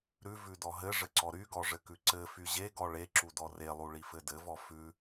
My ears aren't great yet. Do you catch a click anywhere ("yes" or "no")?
yes